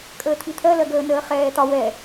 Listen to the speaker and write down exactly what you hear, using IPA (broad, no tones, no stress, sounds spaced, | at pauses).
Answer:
kʼ əː t̪ʰ i t̪ʰ ɜ l ɜ ɡ əː n əː χ ɛː t̪ ɒ w ɛ